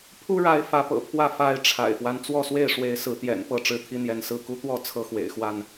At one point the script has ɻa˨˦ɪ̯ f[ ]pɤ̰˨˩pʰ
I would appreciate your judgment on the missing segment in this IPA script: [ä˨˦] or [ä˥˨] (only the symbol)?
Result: ä˨˦